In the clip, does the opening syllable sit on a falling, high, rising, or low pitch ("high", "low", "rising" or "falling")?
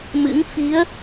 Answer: rising